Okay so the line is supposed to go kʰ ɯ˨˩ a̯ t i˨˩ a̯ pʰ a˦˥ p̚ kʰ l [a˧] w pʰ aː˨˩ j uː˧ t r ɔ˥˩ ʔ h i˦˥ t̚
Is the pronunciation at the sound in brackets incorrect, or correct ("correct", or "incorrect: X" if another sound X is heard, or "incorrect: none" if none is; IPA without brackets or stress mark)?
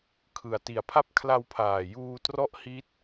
correct